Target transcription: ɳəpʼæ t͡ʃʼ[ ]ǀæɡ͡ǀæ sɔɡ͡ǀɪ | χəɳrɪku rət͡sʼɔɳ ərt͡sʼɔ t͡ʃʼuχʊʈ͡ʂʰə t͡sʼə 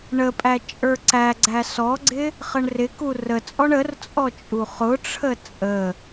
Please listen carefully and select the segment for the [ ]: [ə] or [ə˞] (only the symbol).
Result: ə˞